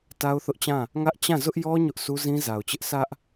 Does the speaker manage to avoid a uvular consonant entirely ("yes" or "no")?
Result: yes